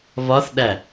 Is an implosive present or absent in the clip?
present